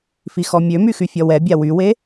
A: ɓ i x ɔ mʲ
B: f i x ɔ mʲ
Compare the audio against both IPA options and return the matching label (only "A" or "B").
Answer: B